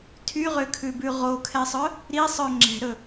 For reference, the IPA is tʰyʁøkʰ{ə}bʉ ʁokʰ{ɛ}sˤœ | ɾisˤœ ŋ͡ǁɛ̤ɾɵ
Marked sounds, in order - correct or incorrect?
incorrect: ʉ, correct

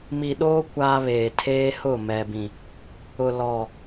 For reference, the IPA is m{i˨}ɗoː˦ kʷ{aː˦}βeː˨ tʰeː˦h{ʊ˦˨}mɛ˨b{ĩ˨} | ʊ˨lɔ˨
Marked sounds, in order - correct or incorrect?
correct, correct, correct, correct

